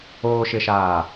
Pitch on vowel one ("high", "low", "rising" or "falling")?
low